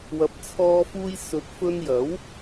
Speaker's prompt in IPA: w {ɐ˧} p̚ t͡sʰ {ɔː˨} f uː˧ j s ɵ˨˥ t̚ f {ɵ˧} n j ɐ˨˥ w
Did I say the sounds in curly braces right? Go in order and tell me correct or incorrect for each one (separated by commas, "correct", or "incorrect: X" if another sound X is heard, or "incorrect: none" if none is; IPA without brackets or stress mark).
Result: incorrect: ɐ˨˥, incorrect: ɔː˧, correct